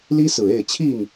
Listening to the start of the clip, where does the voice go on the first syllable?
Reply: high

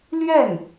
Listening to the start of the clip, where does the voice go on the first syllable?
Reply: falling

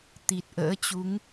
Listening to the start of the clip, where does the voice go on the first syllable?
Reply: low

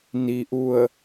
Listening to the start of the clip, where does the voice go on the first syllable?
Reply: low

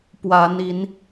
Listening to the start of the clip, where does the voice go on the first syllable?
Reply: rising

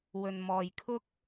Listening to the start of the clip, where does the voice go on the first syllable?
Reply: low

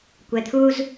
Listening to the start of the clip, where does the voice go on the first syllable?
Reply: low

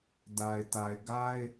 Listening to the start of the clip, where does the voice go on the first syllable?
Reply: low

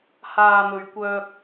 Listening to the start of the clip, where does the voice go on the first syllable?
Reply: low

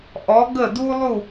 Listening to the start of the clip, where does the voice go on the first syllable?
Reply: rising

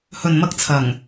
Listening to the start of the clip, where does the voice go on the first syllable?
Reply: low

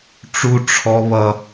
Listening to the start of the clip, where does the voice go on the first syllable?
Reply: high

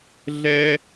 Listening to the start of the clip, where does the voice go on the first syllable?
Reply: high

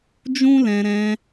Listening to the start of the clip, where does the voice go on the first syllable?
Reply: high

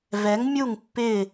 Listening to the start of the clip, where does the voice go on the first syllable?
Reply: rising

